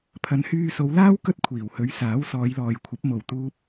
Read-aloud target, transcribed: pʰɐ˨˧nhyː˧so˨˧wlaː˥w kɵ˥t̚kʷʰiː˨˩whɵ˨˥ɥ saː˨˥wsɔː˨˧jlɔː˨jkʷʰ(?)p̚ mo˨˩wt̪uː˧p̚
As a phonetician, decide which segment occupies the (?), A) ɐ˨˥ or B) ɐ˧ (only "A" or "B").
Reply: A